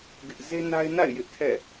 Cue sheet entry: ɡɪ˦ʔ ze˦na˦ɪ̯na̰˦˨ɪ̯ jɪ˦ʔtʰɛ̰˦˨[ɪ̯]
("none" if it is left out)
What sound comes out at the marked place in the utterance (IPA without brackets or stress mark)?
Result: none